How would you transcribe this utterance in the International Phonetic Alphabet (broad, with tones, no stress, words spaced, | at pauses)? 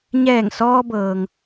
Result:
ɲɛː˧˩ŋsɔː˧bɤː˩ŋ